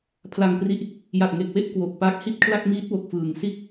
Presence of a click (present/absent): absent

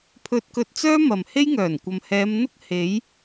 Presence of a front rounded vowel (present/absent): present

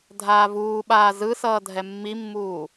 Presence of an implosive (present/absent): present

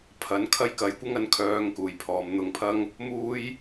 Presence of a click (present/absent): absent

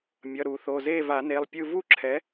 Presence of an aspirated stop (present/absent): present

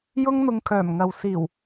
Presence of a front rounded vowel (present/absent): present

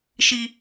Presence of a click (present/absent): absent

